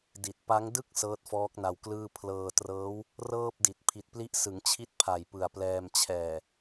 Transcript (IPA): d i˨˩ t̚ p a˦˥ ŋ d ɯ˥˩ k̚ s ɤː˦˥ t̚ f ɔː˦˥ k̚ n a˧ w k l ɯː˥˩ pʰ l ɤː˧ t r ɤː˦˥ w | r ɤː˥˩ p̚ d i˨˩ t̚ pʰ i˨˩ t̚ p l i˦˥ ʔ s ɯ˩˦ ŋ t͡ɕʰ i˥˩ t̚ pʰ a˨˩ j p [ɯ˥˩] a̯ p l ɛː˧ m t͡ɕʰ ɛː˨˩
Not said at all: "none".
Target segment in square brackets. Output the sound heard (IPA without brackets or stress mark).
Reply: ɯ˨˩